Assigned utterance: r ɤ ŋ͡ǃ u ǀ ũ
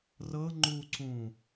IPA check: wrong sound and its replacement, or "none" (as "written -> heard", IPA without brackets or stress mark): none